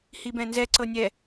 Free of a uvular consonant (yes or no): yes